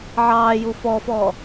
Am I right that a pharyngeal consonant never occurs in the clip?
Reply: no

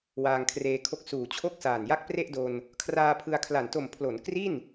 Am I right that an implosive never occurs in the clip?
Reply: yes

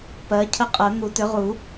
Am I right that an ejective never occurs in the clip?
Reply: no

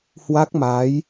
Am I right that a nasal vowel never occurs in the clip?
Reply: yes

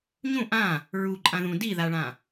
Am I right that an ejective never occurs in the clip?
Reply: no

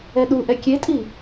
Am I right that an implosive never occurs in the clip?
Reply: no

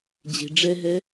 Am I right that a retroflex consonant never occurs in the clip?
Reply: no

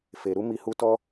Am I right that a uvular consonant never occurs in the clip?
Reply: yes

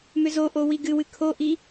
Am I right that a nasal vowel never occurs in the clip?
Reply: yes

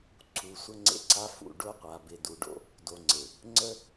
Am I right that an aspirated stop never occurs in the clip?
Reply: no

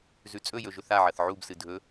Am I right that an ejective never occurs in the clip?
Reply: no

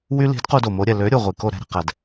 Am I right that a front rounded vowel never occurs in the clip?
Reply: no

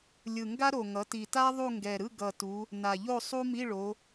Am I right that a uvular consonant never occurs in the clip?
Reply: yes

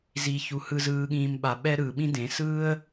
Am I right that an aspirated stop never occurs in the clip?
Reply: yes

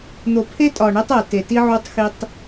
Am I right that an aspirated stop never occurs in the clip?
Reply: no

